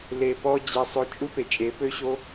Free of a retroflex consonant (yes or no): yes